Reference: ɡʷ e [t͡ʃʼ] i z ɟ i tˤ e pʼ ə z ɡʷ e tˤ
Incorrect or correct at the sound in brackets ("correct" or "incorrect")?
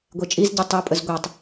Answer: correct